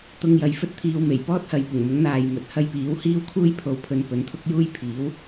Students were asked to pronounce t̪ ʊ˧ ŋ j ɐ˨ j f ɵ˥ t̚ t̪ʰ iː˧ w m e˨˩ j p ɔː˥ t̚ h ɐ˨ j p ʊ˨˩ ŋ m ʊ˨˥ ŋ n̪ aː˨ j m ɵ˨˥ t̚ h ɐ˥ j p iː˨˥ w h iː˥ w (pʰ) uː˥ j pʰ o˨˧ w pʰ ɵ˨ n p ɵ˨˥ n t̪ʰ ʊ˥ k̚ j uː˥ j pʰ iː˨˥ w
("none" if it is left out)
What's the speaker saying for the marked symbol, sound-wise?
kʰ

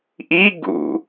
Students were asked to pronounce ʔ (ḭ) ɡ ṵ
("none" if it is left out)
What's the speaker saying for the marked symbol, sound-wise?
i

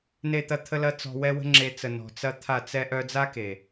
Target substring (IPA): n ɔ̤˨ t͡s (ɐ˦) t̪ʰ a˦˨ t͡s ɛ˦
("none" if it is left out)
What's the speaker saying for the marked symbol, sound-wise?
ɐ˦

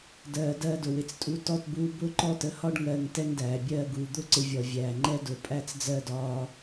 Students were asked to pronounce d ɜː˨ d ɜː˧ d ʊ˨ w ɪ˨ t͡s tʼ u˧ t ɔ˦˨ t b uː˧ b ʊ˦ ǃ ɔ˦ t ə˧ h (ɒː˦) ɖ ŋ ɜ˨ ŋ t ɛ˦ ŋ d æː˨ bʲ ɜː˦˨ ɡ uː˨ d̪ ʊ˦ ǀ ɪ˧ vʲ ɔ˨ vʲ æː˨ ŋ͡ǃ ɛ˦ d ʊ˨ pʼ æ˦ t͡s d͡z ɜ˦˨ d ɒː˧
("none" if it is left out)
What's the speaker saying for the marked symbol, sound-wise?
ɒ˦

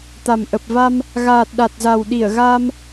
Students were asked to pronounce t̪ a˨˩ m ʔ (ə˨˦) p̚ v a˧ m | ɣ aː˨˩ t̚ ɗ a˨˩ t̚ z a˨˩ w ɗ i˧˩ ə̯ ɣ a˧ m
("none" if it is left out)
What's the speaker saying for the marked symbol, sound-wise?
ə˨˩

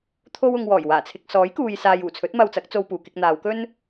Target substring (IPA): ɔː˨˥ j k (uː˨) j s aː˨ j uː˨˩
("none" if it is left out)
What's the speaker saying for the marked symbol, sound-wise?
uː˨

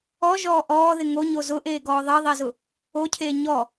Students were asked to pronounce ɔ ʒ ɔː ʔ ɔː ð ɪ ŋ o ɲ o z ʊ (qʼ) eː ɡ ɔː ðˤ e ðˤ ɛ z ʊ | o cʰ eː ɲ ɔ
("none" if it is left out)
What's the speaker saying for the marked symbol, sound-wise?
ʔ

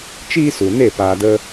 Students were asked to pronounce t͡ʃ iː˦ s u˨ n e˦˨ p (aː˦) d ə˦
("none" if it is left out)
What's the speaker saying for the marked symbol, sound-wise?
aː˧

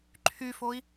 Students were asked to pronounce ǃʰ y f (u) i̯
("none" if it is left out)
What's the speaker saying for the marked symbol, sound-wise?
o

